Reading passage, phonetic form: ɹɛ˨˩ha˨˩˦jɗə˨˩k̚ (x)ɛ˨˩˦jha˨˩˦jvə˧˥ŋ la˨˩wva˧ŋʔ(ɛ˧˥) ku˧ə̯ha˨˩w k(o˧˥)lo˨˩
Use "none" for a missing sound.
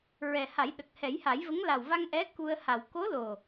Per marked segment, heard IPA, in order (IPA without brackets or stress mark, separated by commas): h, ɛ˧˥, o˧˥